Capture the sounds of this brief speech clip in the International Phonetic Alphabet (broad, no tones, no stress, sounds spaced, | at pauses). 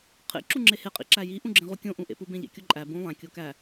qʰ ḛ ǁ u ŋ͡ǁ e h e qʼ ḭ ǁ æ j i ʔ ũ ɡ͡ǁ ẽ ʁ u kʲ õ ʔ ũ ʔ ḛ p u b ẽ ʎ ḛ kʲ o ǃʼ æ b ũ lˠ æ̃ kʲ o k æ